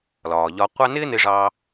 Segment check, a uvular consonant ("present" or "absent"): present